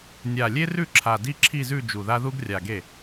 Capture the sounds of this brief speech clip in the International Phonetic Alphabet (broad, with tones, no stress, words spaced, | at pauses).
nʲa˨˩lʲe˥rʉ˥˩ ǁʰa˨˩di˥ ǁʰi˥˧zʉ˥˧ d͡ʒu˨˩ða˥ ðu˥ɡrʲa˨˩ɡe˥˩